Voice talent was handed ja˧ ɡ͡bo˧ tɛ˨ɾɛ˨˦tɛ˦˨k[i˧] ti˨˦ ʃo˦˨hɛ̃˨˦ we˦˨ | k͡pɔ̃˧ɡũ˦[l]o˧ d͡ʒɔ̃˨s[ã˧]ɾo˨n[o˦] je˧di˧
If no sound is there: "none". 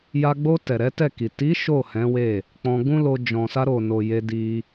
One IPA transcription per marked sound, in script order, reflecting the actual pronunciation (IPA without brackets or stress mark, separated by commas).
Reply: i˨, l, a˧, o˨